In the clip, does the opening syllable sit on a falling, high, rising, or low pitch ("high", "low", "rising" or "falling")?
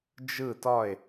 falling